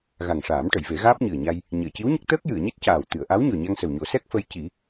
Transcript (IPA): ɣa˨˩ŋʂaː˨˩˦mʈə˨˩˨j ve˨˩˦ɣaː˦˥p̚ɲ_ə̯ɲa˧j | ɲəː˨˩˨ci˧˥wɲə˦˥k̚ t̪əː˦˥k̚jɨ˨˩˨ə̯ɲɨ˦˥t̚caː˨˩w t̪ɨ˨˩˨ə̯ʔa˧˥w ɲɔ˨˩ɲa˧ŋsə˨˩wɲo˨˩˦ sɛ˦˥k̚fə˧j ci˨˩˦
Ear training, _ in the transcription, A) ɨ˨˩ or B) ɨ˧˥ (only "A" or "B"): A